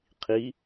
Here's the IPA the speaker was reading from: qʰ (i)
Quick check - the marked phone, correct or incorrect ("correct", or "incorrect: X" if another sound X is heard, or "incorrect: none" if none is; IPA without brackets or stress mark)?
correct